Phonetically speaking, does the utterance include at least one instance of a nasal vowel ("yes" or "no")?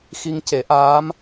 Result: no